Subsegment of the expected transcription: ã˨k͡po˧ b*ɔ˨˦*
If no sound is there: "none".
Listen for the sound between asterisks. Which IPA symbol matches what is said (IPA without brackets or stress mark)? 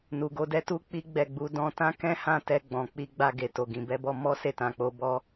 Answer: ɔ˦